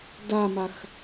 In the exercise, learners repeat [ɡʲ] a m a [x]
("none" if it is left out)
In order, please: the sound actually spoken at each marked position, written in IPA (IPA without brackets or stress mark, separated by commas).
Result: d, x